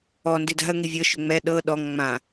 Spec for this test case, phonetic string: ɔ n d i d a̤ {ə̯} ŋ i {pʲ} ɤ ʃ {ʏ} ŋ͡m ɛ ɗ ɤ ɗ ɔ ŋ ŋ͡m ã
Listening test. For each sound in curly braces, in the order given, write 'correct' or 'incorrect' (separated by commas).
correct, incorrect, correct